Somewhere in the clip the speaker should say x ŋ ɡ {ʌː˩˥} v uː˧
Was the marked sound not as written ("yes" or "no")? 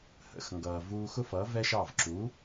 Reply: yes